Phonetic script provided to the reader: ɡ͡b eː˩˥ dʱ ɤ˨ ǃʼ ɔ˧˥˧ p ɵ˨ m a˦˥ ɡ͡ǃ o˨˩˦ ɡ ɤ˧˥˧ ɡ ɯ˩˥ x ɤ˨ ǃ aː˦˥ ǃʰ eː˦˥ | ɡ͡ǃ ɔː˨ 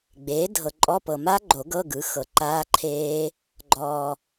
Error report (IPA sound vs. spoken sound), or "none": ɵ˨ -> ɤ˨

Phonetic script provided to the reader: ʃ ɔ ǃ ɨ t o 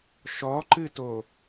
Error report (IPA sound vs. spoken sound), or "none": none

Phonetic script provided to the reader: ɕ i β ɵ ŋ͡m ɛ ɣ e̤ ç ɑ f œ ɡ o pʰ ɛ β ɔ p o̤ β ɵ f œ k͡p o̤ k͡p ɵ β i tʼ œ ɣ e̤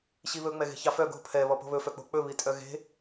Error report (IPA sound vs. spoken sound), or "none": o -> o̤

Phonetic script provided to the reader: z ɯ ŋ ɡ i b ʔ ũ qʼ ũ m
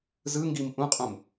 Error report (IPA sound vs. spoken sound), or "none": b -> m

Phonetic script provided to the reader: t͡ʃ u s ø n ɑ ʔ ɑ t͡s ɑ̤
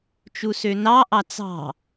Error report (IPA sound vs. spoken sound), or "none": none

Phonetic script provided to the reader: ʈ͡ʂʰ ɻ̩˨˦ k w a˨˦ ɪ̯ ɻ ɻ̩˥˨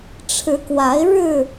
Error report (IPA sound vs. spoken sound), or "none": none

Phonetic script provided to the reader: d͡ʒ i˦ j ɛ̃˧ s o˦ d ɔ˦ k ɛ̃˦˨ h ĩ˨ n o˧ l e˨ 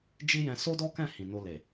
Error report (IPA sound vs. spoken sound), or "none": none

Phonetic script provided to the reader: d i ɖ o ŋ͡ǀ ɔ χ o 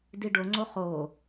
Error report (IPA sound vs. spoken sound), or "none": ɔ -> o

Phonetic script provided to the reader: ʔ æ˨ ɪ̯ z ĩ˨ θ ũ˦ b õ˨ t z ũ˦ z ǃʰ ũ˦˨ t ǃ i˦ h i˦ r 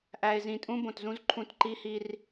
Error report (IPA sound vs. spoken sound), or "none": θ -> tʼ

